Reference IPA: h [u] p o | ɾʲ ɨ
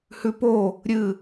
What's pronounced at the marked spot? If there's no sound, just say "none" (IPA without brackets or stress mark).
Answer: ʉ